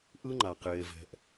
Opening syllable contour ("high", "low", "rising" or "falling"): high